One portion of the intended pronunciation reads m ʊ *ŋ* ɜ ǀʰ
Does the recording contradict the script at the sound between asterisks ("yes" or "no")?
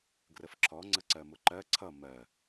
yes